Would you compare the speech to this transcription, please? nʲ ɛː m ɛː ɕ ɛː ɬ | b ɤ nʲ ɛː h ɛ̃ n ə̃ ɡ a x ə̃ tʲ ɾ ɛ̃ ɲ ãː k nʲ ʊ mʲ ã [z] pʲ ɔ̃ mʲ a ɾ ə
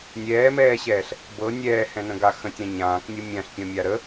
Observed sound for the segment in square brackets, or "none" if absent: ɬ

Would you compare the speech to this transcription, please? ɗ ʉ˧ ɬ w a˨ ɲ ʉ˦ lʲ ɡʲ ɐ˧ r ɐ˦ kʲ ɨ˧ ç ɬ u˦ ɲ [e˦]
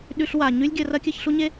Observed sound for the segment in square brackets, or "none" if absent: e˦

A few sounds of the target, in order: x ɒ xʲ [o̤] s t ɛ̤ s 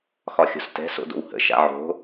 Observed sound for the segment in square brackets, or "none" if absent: o̤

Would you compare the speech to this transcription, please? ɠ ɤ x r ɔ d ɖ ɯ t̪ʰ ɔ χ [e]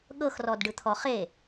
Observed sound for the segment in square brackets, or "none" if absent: e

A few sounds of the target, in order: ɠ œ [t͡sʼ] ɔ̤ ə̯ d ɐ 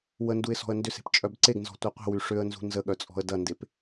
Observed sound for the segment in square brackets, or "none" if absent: t͡sʼ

